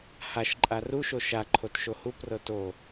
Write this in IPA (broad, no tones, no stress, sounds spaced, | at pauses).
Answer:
h a ʃ ǃʼ a r u ʃ o ʃ a ǃʰ o t ʃ o h u p r ɤ t o